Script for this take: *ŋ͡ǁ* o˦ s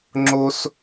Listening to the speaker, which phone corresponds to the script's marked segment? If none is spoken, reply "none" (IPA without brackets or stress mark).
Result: ŋ͡ǁ